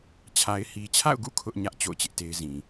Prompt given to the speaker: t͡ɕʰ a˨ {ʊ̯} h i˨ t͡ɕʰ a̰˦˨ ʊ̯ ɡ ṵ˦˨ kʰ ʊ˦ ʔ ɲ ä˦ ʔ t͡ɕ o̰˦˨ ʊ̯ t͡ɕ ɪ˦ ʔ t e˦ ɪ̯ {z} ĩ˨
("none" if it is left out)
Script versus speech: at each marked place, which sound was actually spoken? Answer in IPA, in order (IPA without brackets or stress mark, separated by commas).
ɪ̯, z